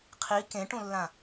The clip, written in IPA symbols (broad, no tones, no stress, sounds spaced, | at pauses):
qʰ i k ẽ ʈ ũ lː ã